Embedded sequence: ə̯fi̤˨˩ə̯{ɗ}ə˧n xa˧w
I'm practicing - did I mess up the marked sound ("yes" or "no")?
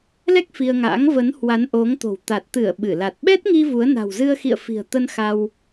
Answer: yes